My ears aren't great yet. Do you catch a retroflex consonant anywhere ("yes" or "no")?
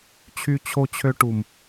yes